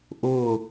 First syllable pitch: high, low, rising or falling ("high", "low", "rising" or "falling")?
falling